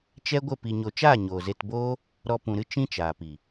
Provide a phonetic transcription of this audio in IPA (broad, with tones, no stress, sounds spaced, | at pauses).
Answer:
t͡ʃ ɛ˦ ɡʷ ə˦˨ p i˨ ɲ o˨ t͡ʃ aː˦˨ ɲ oː˨ z e˧ t b oː˦ | ɾ ɔ˧ p ũ˨ ɾ ɨ˦ t͡ʃ ĩ˦ t͡ʃ aː˨ p i˨